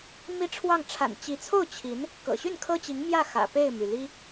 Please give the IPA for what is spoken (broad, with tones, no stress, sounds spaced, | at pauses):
m i˥˧ ʈ͡ʂʰ w ɑ˥˩ ŋ ʈ͡ʂʰ a̰˨˩ n t͡ɕ i˧˥ t͡sʰ o˥˩ ʊ̯ t͡ɕʰ i˧˥ n | k ɤ̰˨˩ ɕ y˥˩ n kʰ ɤ˥ t͡ɕ i˧˥ ŋ m j ä˥˩ x ä̰˨˩ p e˥˩ ɪ̯ m y˩ l i˥